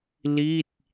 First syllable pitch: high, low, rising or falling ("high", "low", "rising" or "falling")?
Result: falling